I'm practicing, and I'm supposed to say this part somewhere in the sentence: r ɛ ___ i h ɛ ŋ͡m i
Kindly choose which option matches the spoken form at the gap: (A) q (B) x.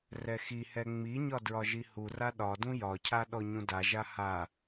B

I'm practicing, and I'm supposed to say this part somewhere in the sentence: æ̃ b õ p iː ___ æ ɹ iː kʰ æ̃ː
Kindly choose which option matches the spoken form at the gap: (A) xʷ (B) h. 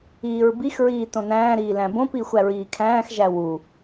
A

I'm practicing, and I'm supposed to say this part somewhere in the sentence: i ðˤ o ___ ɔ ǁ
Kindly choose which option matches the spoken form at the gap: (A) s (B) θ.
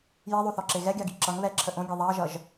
B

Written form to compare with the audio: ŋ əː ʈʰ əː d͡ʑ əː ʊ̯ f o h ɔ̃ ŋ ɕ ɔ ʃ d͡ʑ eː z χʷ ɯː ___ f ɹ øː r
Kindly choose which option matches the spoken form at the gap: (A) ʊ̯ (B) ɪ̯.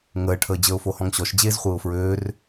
A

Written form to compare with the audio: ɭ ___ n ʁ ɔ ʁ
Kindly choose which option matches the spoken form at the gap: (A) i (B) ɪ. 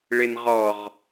B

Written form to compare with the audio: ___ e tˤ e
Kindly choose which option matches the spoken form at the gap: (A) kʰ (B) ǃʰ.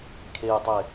A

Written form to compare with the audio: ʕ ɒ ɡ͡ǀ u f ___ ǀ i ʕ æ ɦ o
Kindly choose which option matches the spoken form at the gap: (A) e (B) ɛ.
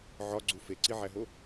A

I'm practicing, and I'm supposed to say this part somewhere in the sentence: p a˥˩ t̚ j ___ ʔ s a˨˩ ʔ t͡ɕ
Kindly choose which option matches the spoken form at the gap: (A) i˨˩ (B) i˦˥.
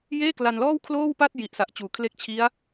A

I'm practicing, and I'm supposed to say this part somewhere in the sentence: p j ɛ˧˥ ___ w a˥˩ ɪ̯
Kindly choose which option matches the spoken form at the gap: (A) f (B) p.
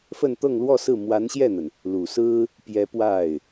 B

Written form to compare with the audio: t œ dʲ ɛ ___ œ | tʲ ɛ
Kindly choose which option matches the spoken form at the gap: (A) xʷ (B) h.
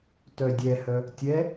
B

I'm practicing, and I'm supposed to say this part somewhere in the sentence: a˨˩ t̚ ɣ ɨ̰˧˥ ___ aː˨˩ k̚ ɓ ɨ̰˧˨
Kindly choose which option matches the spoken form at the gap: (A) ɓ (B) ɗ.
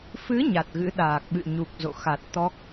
B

